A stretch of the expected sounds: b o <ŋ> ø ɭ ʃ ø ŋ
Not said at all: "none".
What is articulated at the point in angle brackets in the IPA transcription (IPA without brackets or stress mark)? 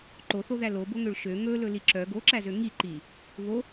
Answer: ŋ